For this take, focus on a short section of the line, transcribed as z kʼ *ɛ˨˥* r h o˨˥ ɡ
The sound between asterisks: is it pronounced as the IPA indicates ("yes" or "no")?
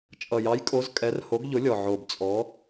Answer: yes